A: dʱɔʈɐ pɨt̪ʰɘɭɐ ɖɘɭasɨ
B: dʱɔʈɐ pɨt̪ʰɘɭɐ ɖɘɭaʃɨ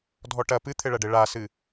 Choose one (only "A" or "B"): A